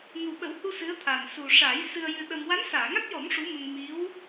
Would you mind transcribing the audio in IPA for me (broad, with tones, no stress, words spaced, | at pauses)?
ŋu˨˩ɓə˨˩˦whu˧ sɨ˧˥ə̯t̪ʰa˨˩n su˨˩ʂa˨˩˦j sɨ˧ə̯jɨ˧ɗə˧m wa˧˥nsaː˨˩˨ŋa˦˥t̚jɔ˨˩˦m ʂu˧˥mə˧ŋ mi˧˥w